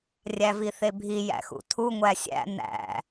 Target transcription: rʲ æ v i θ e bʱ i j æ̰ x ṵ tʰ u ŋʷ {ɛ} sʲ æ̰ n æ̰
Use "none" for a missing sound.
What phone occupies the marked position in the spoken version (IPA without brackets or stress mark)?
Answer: æ